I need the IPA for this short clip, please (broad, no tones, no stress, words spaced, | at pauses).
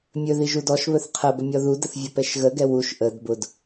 mʲɵði ʒudɔʃβɵθ qʰəbə mʲɔðudəθ vʲɵpɛʃɣəɡɛ wuʃ ʔəd bʊd